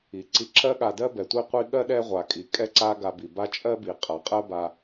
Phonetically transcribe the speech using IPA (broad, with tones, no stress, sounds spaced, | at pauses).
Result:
i˩ ǀ i˨ ǁ ɜ˦ ɠ a˨ d ɜ˥ b ɛ˩ tʷ i˥ qʷ i˥ ɠ ɜ˥ ɗ ɛ˥ ʁʷ a˩ kʼ i˩ kʼ ɛ˥ ǀ a˦ ɡ a˨ b i˩ b a˦ t͡ʃʼ ɜ˥ b i˩ qʼ a˩ qʼ ɜ˦ b a˨